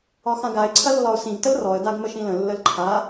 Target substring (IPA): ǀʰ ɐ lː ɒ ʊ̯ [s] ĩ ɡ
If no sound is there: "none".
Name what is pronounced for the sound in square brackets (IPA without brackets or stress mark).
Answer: s